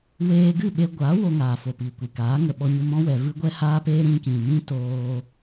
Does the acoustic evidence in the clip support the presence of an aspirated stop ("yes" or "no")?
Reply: no